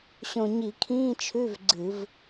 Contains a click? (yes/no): yes